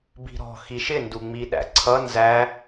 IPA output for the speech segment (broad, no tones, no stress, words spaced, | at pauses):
bi̤ɾɔ̤ xiʃɪ nduŋ͡miɗæ̰ǀʰʌ nzæ